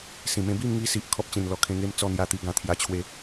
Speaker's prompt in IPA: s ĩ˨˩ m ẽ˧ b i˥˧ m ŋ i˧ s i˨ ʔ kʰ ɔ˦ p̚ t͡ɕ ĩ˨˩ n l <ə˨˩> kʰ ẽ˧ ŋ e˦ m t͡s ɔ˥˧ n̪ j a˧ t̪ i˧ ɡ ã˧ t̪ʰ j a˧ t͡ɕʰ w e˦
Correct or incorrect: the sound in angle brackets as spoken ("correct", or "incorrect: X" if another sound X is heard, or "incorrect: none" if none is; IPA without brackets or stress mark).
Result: incorrect: ɔ˨˩